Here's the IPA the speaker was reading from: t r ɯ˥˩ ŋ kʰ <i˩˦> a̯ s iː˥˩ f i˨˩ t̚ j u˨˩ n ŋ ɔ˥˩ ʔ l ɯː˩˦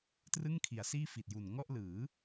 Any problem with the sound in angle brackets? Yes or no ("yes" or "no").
no